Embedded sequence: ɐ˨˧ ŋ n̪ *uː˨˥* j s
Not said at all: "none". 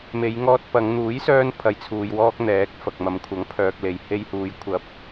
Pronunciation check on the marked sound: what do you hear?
uː˨˥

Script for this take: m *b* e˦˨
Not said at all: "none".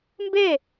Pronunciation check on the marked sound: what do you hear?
b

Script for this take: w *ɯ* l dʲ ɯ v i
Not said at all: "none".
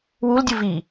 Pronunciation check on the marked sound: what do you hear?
u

